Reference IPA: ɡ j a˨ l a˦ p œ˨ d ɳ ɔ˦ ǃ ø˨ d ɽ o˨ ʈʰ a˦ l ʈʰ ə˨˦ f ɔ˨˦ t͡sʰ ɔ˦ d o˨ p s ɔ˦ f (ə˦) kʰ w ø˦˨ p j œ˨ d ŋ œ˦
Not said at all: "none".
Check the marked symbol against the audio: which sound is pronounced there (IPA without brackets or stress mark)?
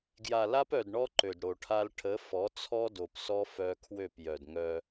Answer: œ˦